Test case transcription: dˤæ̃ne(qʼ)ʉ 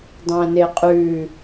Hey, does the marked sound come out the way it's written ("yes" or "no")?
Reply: yes